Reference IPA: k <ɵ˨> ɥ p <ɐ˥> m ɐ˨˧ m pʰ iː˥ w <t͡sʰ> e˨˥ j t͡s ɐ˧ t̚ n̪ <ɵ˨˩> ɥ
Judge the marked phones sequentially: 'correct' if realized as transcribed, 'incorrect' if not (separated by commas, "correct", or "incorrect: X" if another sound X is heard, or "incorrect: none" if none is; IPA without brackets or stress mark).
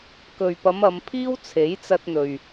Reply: correct, incorrect: ɐ˨˧, correct, incorrect: ɵ˨